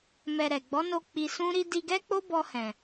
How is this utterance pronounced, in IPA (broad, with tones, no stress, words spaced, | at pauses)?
mɛ˧ɾɛ˨ ɡ͡bɔ˨˦no˧ k͡pi˧ sũ˦ ɾi˦ di˧ɡɛ˦k͡po˦ bɔ˧hɛ̃˨